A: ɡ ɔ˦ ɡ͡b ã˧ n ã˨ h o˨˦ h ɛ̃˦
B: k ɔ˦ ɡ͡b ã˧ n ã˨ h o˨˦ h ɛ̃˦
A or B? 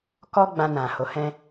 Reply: B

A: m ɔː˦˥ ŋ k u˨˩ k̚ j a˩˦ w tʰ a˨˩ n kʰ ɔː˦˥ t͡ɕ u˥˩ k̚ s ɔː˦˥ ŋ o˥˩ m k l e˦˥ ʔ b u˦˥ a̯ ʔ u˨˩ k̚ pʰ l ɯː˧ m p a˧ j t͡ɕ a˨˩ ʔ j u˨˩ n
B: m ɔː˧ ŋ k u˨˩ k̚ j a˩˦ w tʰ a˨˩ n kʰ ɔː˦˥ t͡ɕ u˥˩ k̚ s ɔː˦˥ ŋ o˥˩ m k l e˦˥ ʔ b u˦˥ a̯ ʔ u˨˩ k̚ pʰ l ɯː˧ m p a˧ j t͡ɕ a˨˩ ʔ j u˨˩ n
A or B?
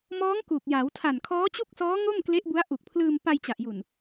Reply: A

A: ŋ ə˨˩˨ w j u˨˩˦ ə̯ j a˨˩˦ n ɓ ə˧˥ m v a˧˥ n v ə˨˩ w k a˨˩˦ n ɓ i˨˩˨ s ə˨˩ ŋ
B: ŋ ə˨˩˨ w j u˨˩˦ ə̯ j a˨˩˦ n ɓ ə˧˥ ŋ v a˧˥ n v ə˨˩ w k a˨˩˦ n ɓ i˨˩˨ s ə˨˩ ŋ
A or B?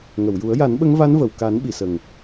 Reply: B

